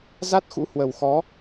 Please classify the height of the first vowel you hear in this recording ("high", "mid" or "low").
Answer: low